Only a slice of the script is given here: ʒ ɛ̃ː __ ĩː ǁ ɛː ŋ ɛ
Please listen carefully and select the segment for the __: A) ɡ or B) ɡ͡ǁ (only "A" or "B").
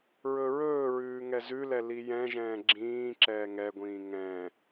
B